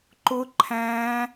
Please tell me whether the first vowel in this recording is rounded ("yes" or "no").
yes